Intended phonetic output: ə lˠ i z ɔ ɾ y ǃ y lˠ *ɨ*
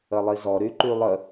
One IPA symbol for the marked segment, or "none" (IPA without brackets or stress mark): ə